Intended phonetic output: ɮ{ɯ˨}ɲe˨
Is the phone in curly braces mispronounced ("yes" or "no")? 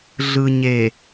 no